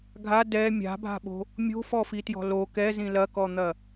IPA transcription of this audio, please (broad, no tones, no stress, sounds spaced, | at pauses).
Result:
ɡʱ a d ɛ mʲ a̤ bʱ a̤ ɓ o̤ | mʲ o̤ f ɔ f i t j ɔ̤ l o k ɛ z ĩ l ɐ k ɔ n̪ ɐ